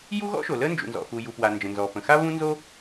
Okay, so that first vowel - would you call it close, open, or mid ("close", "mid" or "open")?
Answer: close